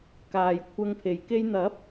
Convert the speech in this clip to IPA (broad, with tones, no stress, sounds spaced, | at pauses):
k aː˨ j kʷʰ ɐ˧ ŋ pʰ e˨ j k e˧ j n̪ ɐ˨˥ p̚